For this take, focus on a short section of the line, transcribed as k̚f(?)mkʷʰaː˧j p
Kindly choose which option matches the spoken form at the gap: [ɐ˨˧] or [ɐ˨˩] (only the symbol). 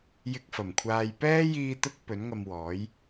ɐ˨˩